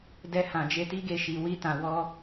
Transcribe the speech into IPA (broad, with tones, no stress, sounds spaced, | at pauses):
d ɛ˧ h ã˨ d͡ʒ e˧ t i˦ ɡ e˦˨ ʃ i˨˦ w i˦ t ã˧ w ɔ˦